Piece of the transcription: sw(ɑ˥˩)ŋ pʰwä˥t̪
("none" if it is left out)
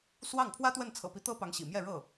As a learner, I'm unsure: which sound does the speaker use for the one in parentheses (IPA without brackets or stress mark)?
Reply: ɑ˥˩